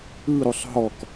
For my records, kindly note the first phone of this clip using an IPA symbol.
ɯ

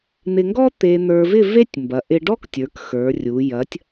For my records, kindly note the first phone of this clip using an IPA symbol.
n̪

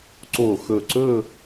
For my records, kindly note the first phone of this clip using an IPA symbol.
ǀ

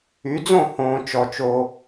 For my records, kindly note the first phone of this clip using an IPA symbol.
y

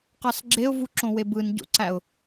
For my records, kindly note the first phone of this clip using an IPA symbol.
q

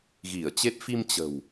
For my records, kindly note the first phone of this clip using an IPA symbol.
ɣ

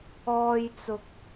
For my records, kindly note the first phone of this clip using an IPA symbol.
ɔː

